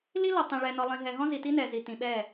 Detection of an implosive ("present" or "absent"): present